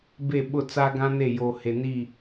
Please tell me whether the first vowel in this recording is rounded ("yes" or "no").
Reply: no